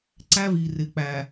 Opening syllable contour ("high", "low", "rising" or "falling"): high